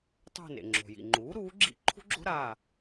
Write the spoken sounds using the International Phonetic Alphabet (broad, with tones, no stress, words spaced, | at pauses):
tˤṳ˦˨nḛ˩ŋ͡ǁo̤˩ jḭ˩ŋ͡ǃuː˩˥ ɾuː˩˥ɡ͡ǁḭ˦˨ ǃʰṳ˥ɡ͡ǁo̤˥ ɾa˦˨